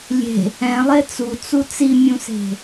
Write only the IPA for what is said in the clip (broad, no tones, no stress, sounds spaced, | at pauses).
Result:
lʲ e̤ | ɛ̃ lˠ e t͡s u t͡s u t͡s i mʲ ũ s e̤